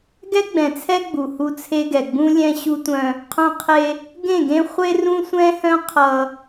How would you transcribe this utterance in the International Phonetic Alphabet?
ɡ ɛ˦ ɡ͡b ɛ̃˨ t͡sʰ ɛ˦ ɡ͡b u˨ h u˦ t͡sʰ e˦ ɡ ɛ˨ ɡ͡b ũ˦ lʲ ɛ̃˦ ɕ u˦ tʷ œ̃˦ | qʰ œ̃˦ qʰ e˦ | ɡ ẽ˦˨ ɡ ẽ˦ χʷ e˦ r ũ˦ sʷ ɛ̃˦ h œ̃˦ qʰ ʌ˦

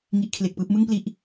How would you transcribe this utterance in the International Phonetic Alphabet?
ŋ i˦˥ ʔ kʰ l e˨˩ k̚ p ɯː˥˩ p̚ m ɯ˥˩ ŋ p l i˦˥ ʔ

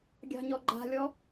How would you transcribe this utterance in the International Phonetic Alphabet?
ɡʲ ɑ̤ ɲ ɔ ɡ͡ǃ a̤ lʲ ɔ

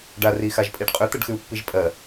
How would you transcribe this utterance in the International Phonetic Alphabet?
ɖ a r i x a ʒ pʼ i ɖ qʼ ʏ t̪ ə ɖ x ʉ u̯ pː i ʒ pʼ ɜ

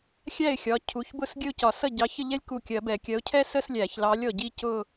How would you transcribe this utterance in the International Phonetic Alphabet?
xʲ æ˥˩ ɪ̯ xʲ ɒ˩˧˩ cʰ u˩˧˩ ç b ʊ˥˩ s ɡʲ ə˥˧ ʊ̯ c ɒ˨˩˦ s ʌ˥˩ ɟ ɑ˨˥ ç ə˥˧ ʎ ɛ˥ lʲ k u˥˩ kʲ ɜ˨˩˦ b ɛ˨˩˦ kʲ ɜ˨˥ ʊ̯ cʰ ɛ˥ s ə˥˧ s lʲ æ˨˩˦ ç l ɑ˨˥ lʲ ɔ˥˩ ɟ i˥ c ʊ˥˧

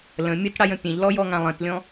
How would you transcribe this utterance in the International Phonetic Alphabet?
l ə̃ mʲ ə t ɽ a j ə̃ pʲ ẽ ʎ l ɔ j ɔ ŋ ã lˠ ə̃ t lʲ ɔ̃

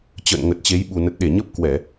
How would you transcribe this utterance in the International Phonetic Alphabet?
t͡ɕ ə̰ː˧˨ n ŋ ə˨˩ t̚ t͡ɕ e˨˦ j ɓ u˨˩ n ə˨˩ t̚ ɗ e˧˩ ɲ ə˦˥ p̚ k w ɛ˧˩˨

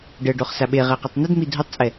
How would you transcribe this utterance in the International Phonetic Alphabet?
ɖ ə ɖ o χ s a ɓ e ʁ ɛ q ø tˤ n œ d m i dʱ u tˤ t͡sʼ ɛ

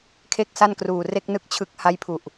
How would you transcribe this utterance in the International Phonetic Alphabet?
kʰ e˥˩ k̚ s a˥˩ n k r uː˨˩ r e˥˩ k̚ n ɯ˥˩ k̚ t͡ɕʰ ɯ˦˥ k̚ h a˦˥ j pʰ u˨˩ ʔ

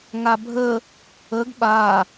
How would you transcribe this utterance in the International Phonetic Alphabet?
ŋ a bʱ ə | ə ɡ ɓ a

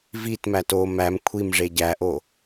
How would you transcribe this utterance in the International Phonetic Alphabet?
v i t m æ t o m æ m kʷʰ i m ʐ e ɟ æ ʔ o

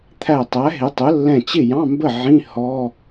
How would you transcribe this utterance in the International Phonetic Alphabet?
t̪ʰ æ˧˩ tˤ æ˩˥ ɦ ɪ˩˥ tˤ ʊ˩˥ lː ɛ̃˧˩ t͡ɕ ɪ˥˩ j ɑ̃˧˥˧ m b ə˥˩ ʕ ĩ˧˥˧ h ɔ˧˥˧

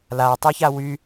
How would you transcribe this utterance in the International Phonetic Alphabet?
l a tˤ y ç a w y

